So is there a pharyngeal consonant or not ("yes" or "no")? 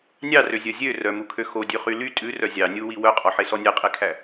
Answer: yes